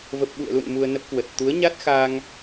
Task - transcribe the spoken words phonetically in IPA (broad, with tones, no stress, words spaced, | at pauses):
və˨˩p̚ɓṵ˧˨ə̯lṵ˧˨n mu˧ə̯nə˦˥p̚kwə˨˩t̚ t̪u˨˦ə̯ɲa˦˥t̚xa˧ŋ